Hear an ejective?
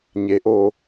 no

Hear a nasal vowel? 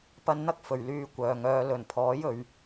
no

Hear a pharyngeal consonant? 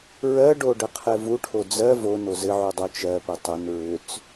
yes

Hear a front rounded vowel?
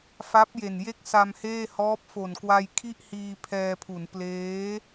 no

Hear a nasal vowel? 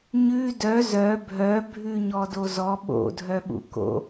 no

